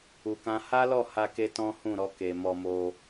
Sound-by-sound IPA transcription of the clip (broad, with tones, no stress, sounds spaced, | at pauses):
u˧ k ã˦ h a˦ l ɔ˦˨ h a˧ k e˦ t ɔ̃˦ h ũ˦˨ ɾ ɔ˧ k e˨ m ɔ˧ m o˧